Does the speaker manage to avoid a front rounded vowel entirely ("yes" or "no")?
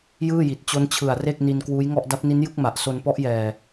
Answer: yes